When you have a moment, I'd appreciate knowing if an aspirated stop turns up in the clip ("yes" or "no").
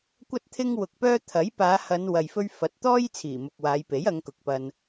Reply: yes